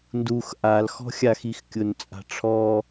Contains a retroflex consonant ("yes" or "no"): yes